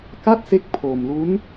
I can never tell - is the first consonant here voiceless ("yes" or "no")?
yes